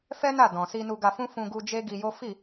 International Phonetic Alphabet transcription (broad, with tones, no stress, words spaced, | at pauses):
fɛ˦na˦˨ dɔ̃˨si˧ nu˧ɡa˧fũ˦ fũ˧ɡu˧ d͡ʒe˦ɡi˧jo˦ fi˦˨